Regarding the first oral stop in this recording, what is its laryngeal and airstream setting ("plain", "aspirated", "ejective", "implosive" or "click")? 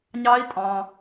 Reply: ejective